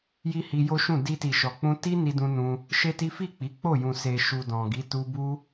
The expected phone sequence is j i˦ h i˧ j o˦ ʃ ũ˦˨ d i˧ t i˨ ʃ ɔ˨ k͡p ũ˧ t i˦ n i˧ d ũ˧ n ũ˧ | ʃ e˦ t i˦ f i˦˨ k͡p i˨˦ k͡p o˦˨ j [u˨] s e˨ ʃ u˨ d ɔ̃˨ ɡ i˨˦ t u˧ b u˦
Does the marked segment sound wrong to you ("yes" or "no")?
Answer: yes